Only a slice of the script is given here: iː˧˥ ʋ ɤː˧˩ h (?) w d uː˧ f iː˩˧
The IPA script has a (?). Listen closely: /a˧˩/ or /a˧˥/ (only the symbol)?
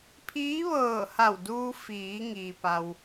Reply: a˧˩